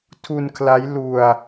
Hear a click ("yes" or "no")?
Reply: no